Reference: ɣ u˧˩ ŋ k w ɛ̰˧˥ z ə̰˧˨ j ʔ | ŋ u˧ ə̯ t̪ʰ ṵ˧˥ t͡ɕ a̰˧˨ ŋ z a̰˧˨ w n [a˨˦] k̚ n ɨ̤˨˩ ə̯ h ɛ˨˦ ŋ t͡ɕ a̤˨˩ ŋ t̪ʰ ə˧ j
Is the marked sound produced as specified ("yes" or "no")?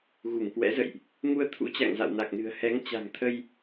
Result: no